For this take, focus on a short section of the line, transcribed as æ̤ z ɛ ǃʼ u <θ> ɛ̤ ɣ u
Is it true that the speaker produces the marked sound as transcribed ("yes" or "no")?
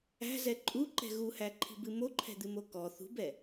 no